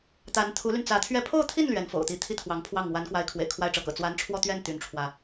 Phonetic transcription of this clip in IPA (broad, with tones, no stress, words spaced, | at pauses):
t̪a˧˥n t̪ʰu˧˥ly˧nt͡sä˧˥ t̪ʰɥɛ˧˥pʰo˥˧ʊ̯t̪ʰi˥˩n lɥɛ˧˥nfo̰˨˩ʊ̯t̪i˧˥ t̪ʰi˥t̪ʰwɑ˧˥ŋpʰwɑ˥˩ŋ wa˧˥nkwa˧˥ɪ̯ kʰwḛ˨˩ɪ̯kʰwa˥˩ɪ̯ʈ͡ʂɤ˧˥kɤ̰˨˩ t͡swa˧˥nʈ͡ʂʰwɔ˥˧t̪ɥɛ˥˩n t̪y˧˥nʈ͡ʂʰwä˧